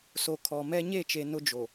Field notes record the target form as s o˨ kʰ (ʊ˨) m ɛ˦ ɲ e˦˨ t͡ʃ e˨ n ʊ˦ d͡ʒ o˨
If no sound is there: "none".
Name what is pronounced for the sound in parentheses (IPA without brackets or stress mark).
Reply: ɔ˨